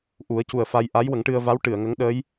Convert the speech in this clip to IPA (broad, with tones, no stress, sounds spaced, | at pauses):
ʔ u˨˩˦ ə̯ c u˨˩ ə̯ f a˧ j ʔ a˧˥ j w ə˨˩˦ ŋ ʈ ɨ˧ ə̯ v a˧˥ w ʈ ɨ˨˩˨ ə̯ ŋ ə˧˥ ŋ ɗ əː˧˥ j